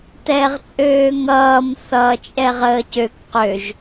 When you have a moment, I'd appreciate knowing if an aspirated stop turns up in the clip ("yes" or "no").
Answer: no